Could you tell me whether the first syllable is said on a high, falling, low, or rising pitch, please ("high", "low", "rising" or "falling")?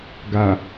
low